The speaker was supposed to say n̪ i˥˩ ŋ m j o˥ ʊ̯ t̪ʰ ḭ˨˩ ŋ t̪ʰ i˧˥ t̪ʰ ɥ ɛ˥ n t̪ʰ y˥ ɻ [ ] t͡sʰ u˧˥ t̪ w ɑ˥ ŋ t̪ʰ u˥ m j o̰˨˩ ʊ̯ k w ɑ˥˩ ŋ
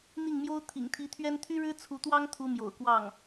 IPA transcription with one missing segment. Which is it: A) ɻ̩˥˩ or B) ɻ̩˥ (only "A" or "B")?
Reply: B